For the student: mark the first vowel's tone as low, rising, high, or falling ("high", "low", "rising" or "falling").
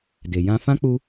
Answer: low